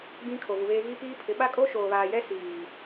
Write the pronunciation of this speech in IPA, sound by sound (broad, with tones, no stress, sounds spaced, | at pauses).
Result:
ɡ͡b ĩ˦ kʰ o˨ v u˨ β eː˦ ɣ i˦ p iː˦ pʰ ɪ˨˦ ɓ a˦ kʼ o˦ ʃ oː˨ β aː˨ j ɛ˦ s iː˨